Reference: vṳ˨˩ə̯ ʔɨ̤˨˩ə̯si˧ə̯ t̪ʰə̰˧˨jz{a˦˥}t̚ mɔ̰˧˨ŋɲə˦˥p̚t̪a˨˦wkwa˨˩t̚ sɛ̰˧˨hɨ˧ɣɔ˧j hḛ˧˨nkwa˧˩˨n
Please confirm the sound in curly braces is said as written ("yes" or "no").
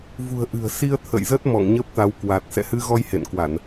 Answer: no